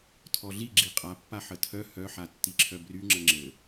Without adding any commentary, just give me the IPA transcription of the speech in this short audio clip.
tʰɔɮi ɡ͡ǁiqʼapːa ħətʰœ hœħa tːiǁʰœbry ŋ͡ǁəŋ͡ǁɘ

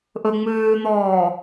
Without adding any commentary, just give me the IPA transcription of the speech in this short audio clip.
ʔɵŋ͡mʉːn̪ɔː

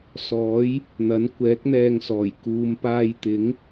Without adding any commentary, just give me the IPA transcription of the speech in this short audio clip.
sɔː˨˥j | n̪ɐ˨˥nkʷɛː˨˥k̚n̪ɛː˧ŋsɔː˨˩j kuː˨mpaː˧jt̪ɪ˨˥ŋ

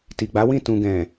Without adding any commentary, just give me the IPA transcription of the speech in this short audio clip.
ti˨ɡ͡ba˨˦wĩ˦˨ tũ˨ɡɛ̃˨

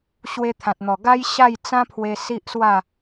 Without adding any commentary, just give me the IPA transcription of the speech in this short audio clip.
ɕwe˧t̪ʰã˨t̚n̪ɔ˨˩ ɡa˦j ɕa˥˧jt͡sã˦pʰwe˧ si˦ʔswa˥˧

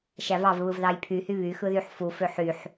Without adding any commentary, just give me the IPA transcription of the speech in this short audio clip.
ʃævɑvβɯv ðɑjpʰyhy βy xɯðyħfufø ħyħ

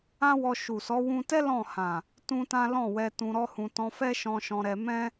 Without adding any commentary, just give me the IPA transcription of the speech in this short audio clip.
ã˦wɔ˧ ʃu˨sɔ˨˦ wũ˧tɛ˦ lɔ̃˦˨hã˨ | tũ˦tã˦ lɔ̃˦˨wɛ˧ tũ˧ɾɔ˦hũ˧ tɔ̃˧fɛ˦ ʃɔ̃˧ ʃɔ̃˧ɾɛ˧ mɛ̃˦

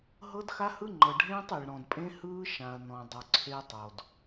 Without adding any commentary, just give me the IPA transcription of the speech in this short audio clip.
ɦɤ˦dxa˦hɯ˦ ŋ͡ǃɤ˨ɖʱẽː˦tˤe˨ɭ ɾɔ̃˨dpʼẽ˦hɯː˦ʃã˨ɐ̯ nɔ̃˨dˤo˨ ǀʰe˦tˤo˨d

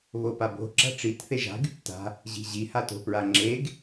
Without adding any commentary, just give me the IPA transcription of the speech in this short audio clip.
βopabo̤ ǁa̤ʈ͡ʂit θeʒa̤ ɡypta̤ | ʑi̤ʑi hato̤ pɹaŋ͡ǁeɡ

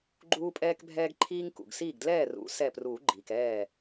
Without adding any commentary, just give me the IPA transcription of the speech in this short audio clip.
ɡ͡ǃuː˦pʼɛː˦kbʱɛː˦ɡǃʰiː˦ŋ kṵ˩ɡsiː˥˩ɡdlɛː˥˩rṵ˨˩˦ sɛ˧˩pruː˨˩˦ɡ͡ǃiː˩k ɛː˧˩

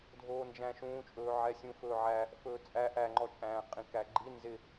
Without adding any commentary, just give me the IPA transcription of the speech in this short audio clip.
dʱoːnd͡ʒæ̃ʃũːt͡ʃʼɵː ʕɛsʲũfɵːʕæ | fɵːt͡sʼæ ʔæŋ͡ǃɔt͡ʃʼæ̃ː qʼĩkæɡ͡ǃi nzɪ

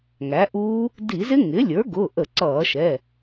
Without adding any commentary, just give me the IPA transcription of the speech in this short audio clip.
ŋæ˩˥ʔuː˦˥ | di˧˩˧zɪ˦˥ ŋɪ˩˥lʲə˞˩˥ɡʊː˩˧˩ʔə˧˩˧ ǀʌː˧˩˧ʃɛ˩˧˩

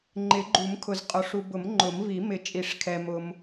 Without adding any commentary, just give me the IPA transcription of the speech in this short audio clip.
ŋ͡ǃɪ˨˩˦ɡ͡ǃu˨˩˦mkʰʊ˨z qʼʊ˨ʂu˨bʊ˨˩˦m ŋ͡ǃʊ˨˩˦mvi˨˩˦ mɪ˨˩˦t͡ʃʼi˨˩˦ʂkʰɛ˨ mʊ˨m

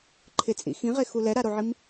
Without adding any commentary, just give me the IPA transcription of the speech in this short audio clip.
ǃʰɪt͡sʼḭ xĩʁexu lɛɾaɾoʕim

